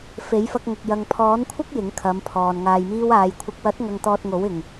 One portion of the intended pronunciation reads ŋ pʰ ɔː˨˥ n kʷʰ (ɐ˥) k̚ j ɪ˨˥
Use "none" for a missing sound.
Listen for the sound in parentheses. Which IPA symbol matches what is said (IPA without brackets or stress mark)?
ɐ˥